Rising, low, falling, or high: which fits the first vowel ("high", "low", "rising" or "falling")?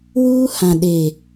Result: high